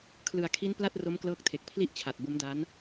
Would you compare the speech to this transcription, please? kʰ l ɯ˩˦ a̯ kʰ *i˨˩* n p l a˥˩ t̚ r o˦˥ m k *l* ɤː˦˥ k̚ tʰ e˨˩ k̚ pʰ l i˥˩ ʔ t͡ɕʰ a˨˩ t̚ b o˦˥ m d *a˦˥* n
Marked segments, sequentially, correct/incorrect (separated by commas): incorrect, correct, correct